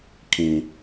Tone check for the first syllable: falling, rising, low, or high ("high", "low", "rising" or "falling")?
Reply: high